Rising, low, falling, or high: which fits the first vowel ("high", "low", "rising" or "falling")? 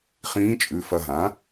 rising